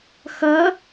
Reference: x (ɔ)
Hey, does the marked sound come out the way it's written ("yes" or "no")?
no